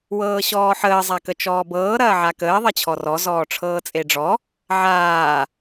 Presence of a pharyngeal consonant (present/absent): present